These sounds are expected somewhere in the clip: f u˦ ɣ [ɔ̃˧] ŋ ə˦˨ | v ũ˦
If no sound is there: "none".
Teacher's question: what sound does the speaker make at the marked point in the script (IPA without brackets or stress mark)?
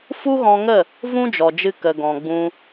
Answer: ɔ̃˧